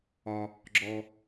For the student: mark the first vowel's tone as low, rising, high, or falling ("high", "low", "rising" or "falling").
low